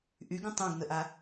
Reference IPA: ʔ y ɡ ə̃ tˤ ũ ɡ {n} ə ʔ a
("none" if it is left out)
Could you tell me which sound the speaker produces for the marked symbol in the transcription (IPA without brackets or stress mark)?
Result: n